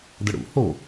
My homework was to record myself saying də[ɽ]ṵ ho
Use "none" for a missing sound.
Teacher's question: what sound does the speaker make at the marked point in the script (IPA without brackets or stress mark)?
ɽ